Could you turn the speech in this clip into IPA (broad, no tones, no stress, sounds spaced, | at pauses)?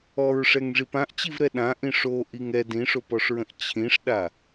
ɔ ɹ ʂ ɛ ŋ ʐ i p ã ʔ t͡ɕ i v ɾ ɛ ɗ ã ʔ ĩ ʂ o ʔ i ŋ ɛ d ĩ ʂ o p ɔ ʂ ɹ ə̃ ʔ t͡ɕʰ ĩ ʂ ɗ a